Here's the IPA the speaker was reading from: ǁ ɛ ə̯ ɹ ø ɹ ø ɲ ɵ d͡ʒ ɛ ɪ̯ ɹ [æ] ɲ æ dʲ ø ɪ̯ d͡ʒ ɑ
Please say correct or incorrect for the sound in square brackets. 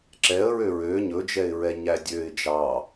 incorrect: ɛ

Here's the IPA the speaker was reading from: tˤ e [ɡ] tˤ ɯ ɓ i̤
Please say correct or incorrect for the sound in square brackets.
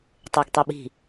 correct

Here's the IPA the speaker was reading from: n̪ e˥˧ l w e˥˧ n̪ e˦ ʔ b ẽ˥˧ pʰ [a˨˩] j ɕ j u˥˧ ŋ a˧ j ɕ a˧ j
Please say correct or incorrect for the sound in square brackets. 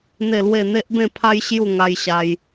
incorrect: a˦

